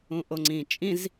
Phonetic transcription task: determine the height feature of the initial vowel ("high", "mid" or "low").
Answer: high